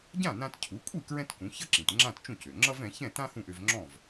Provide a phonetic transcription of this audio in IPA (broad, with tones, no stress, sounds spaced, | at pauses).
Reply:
ɟ ã˥˩ n ã˧ t cʰ u˩˥ kʷʼ i˥˩ k ɹ ɛ̃˥ t k ũ˩˥ ç ʌ˥ ǁ ĩ˩ t ŋ͡ǁ ã˥˩ t t͡ʃ ũ˥˩ c ø˩ ŋ͡ǁ ʌ˥ v ɛ̃˩˥ ç ɛ̃˥˩ t ã˥ h ũ˥˩ ʔ ø˧ v ŋ͡ǁ ɔ̃˥˩ v